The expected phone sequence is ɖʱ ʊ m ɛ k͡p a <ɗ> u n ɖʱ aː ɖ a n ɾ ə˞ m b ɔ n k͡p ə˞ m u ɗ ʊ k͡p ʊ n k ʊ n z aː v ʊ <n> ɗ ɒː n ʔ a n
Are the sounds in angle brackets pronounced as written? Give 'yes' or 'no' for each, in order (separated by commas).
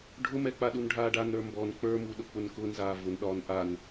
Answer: yes, yes